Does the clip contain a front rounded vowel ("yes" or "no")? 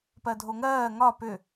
yes